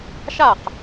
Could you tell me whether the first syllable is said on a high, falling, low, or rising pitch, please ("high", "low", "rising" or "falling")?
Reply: falling